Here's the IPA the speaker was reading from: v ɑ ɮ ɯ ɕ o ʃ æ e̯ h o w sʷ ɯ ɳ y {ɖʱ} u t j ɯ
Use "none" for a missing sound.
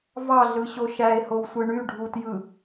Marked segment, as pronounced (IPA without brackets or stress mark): ɖʱ